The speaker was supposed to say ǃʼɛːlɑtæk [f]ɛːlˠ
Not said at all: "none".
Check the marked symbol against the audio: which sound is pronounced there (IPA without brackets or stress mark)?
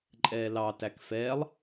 f